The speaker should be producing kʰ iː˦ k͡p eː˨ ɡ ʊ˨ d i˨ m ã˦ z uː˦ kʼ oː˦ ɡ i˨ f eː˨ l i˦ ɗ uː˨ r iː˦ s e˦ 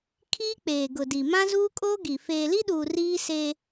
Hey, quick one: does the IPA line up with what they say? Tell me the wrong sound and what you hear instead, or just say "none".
none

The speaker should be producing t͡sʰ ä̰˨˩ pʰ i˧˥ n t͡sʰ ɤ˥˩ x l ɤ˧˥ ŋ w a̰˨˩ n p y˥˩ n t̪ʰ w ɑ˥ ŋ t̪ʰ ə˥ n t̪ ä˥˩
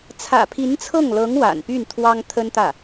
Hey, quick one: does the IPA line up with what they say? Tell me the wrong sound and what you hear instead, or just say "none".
x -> ŋ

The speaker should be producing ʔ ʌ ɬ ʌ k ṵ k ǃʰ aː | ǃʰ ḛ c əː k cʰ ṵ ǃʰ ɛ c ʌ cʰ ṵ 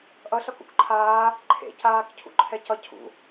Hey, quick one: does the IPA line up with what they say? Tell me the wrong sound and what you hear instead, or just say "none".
əː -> aː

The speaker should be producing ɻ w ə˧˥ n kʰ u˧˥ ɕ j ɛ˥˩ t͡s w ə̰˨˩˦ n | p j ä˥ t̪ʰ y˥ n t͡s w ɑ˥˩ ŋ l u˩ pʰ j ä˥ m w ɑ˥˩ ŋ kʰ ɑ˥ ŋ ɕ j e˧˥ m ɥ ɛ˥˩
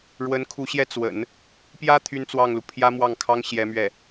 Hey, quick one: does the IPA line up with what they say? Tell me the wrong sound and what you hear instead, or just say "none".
e˧˥ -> ɛ˧˥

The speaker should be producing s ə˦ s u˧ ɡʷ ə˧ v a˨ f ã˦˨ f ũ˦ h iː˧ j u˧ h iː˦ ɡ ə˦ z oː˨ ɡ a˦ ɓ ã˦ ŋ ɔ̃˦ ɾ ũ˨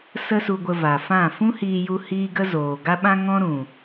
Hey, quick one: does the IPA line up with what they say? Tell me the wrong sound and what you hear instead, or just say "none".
none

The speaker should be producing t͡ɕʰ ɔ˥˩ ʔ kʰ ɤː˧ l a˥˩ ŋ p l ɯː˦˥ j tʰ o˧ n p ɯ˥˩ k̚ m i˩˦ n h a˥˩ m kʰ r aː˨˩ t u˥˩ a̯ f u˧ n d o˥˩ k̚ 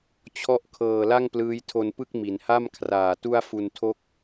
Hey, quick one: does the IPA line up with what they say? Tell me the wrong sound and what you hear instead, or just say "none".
d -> tʰ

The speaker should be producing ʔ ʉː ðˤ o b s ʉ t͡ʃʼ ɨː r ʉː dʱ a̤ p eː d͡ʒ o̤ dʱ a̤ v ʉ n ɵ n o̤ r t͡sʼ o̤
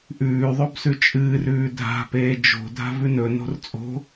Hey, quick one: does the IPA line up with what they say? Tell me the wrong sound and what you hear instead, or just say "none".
none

